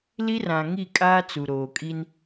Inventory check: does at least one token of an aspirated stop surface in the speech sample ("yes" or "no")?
no